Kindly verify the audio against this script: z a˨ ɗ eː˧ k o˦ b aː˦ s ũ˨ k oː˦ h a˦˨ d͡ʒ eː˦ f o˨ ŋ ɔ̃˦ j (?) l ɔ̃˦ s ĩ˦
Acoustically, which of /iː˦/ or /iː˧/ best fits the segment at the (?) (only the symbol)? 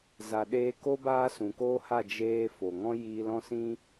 iː˧